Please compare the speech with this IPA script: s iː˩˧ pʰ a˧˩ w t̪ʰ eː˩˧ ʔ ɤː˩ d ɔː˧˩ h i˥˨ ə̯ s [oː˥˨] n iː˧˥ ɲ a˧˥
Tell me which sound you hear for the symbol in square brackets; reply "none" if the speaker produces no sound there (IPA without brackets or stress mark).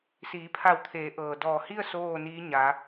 oː˥˨